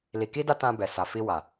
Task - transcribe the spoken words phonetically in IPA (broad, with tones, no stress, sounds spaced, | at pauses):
l i˨ k i˧ d a˧ t ã˧ b ɛ˨ s a˨ f i˧ w a˨